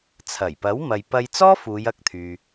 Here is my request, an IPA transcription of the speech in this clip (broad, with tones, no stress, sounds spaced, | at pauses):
t͡sʰ ɐ˨˩ j p ɐ˨˥ w m ɐ˨ j p ɐ˧ j t͡s ɔː˥ f uː˨˧ j ɐ˧ k̚ t̪ʰ yː˨